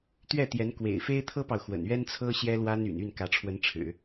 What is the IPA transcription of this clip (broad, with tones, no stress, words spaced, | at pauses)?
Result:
t̪ɥɛ˥˩t̪jɛ˧˥n kwḛ˨˩ɪ̯fe˥ɪ̯t̪ʰɤ˥pɑ˨ʊ̯ xwə̰˨˩nɥɛ˥nt͡sʰɤ˥ ɕjɛ˥lwa˥ny̰˨˩n y˥˩nkä˧˥ʈ͡ʂʰwə˧˥nʈ͡ʂʰɻ̩˨˩˦